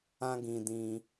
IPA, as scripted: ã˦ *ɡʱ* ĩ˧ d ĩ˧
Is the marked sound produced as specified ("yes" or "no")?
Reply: no